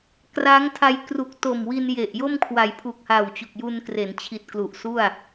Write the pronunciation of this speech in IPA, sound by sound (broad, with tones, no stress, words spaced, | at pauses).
kra˦˥ŋ tʰa˧jkru˨˩k̚ to˨˩mwi˧nje˨˩ʔ jo˥˩mkʰwa˩˦jpʰu˨˩k̚ha˨˩w t͡ɕu˨˩k̚ju˧nkre˩˦nt͡ɕʰi˨˩t̚ klu˨˩ʔsu˥˩a̯